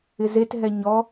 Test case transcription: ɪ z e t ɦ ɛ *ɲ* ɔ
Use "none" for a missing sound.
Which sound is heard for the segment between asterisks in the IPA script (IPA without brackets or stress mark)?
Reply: ɲ